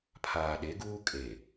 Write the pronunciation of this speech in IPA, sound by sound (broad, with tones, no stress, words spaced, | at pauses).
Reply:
pʰaː˨ɗe˨˦ɡuː˦kʼe˨